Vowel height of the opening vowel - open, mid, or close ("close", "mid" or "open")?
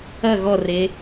open